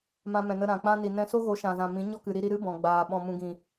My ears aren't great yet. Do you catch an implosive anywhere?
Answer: yes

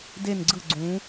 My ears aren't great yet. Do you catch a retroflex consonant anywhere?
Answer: no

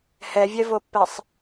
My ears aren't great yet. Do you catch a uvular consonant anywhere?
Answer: no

